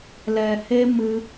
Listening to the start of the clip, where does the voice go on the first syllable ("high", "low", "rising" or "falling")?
low